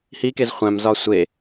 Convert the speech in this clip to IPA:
hikez χʷæ̃mzɒ sʷe

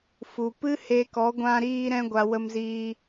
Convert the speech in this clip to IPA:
fu˨pɨ˦he˧kɔ˨˦ ɡʷã˧ɾiː˧ɾɛ̃˧ɡʷa˨ wə˧mziː˧

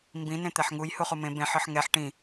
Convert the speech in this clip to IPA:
mbĩ nẽt̪ɛħŋuj huχumẽ bẽħɯħ ŋɛħ ʈĩ

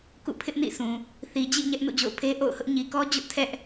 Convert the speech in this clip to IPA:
kṵ˦˨pʰɪ˦ʔnḭ˦˨sʰũ˨ | θi˨d͡ʑḭ˦˨ ɲɛ˦ʔnṵ˦˨d͡ʑo̰˦˨ʊ̯ pʰe˦ʔo̰˦˨ʊ̯hʊ˦ʔ ɲi˨kɔ˦ d͡ʑʊ˦ʔtʰɛ˦ʔ

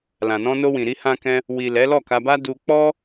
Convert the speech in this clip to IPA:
lã˨nɔ̃˧no˧wĩ˨ ɾi˧hã˧kɛ̃˧ | wi˨ lɛ˨˦lɔ˦˨ka˧ba˦ du˧k͡pɔ˦

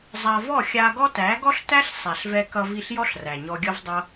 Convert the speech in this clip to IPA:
zˤa˧vɔ˦˨xʲa˧ɡɔ˦ tæ˨˦ɡɔ˦ɬtæ˦ɬ sˤæ˨ɬvɛ˧kʌ˧vi˧ɬ jɔ˦ɬræ˨ɲɔ˧ɡʲʌ˦v dˤʌ˦

